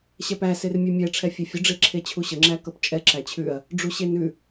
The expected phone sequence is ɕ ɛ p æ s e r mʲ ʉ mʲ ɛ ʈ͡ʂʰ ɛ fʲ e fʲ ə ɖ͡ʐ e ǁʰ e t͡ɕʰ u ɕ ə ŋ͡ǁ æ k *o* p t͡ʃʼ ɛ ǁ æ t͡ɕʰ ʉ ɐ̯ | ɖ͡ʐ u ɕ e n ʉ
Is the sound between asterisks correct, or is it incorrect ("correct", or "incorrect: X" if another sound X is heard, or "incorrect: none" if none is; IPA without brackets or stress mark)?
incorrect: ɤ